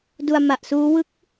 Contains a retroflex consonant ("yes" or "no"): no